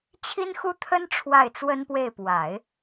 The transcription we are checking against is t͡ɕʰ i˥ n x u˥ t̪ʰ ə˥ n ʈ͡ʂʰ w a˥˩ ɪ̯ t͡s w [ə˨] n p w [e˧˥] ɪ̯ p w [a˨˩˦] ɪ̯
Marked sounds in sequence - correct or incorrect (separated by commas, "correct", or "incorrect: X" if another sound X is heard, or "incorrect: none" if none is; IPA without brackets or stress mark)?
incorrect: ə˥, incorrect: e˥˩, correct